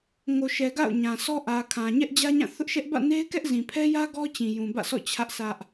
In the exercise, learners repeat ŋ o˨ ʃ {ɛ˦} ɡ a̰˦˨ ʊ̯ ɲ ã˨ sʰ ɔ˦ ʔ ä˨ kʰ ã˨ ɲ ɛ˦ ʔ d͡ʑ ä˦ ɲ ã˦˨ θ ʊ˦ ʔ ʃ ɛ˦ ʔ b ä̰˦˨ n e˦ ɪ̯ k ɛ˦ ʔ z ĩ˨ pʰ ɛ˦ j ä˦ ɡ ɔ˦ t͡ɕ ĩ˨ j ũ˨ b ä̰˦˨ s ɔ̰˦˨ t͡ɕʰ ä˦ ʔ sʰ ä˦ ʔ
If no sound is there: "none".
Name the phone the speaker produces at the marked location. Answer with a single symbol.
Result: ɛ˨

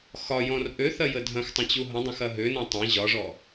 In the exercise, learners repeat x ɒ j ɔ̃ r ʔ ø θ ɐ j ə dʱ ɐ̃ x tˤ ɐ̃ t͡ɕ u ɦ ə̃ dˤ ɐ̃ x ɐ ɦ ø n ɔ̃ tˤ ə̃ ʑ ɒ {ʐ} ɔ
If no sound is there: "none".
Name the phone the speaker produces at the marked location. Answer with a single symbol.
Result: ʐ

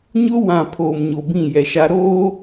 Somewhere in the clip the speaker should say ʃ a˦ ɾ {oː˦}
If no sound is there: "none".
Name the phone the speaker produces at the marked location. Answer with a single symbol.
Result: oː˦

